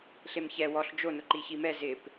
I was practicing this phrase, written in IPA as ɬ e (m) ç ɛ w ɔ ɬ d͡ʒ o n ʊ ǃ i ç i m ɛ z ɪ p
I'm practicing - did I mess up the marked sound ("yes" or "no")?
no